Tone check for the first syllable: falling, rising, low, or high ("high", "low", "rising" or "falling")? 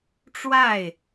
falling